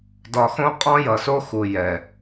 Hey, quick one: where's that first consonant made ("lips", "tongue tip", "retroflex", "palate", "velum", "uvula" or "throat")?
tongue tip